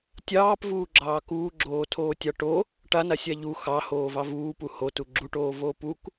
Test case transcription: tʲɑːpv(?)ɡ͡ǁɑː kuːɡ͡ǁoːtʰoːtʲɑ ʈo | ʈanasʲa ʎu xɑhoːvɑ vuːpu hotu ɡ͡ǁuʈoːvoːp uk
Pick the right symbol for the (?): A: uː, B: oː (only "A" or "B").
A